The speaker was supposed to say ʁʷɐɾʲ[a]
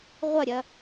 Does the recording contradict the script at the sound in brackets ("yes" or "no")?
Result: yes